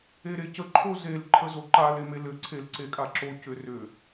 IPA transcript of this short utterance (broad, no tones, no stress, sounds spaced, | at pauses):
e ɾ e c ə ǃʰ o z e l ǃʰ ə z o ǃ a l e m e l ɘ ǀʰ e l ǀ e kʼ a ǁ o c ʏ r ʏ